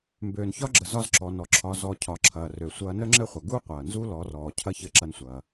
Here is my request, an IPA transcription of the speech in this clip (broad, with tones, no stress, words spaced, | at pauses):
mbøː˩nçɒ˧˥ɡ͡ǁə˩ zɒ˧zǁɔ˩ nɔ˩ǁʰɒ˩˧ zɔ˩ cʰɒ˩˧ǁʰɐː˩rø˩ sʷɐː˧nə˥ŋ͡ǁɘ˥χʷɐ˩ ɡu˥ qʷɐː˩nzu˥ lɔ˩˧rɔː˩ cʰɐ˥çɘ˧˥ǁɐ˧nsʷɐː˩